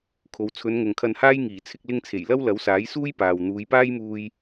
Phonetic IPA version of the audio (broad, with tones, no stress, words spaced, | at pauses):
kʰo˨˧w t͡sʰɵ˨˧nŋʊ˨ŋkʰɐ˧nhaː˥j ŋiː˨˩ t͡sʰɪ˧k̚lɪ˧ŋt͡sʰe˨˩j lɐ˥wlɐ˨˥wsaː˨˥j suː˥j paː˨wn̪uː˨˧j paː˥jmuː˧j